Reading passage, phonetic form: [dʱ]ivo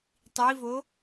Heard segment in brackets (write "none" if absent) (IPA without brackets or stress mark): tˤ